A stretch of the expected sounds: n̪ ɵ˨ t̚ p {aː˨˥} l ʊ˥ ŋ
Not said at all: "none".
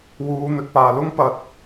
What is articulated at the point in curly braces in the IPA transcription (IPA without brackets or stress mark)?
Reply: aː˨